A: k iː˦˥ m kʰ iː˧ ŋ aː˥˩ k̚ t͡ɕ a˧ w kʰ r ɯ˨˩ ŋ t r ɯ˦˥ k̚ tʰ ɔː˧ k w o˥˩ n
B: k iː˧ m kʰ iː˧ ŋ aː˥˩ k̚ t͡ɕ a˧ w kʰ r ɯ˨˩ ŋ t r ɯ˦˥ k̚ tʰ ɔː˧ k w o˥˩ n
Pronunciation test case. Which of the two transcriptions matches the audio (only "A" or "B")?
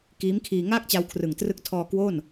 A